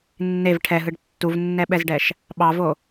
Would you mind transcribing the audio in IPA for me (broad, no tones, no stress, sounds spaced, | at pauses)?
nː e v ʈʰ ɛ ɦ ɯ ɖ tː u v nː ɛ ɓ ɛ z ɖ ɛ ʃ | ɓ ɑ v o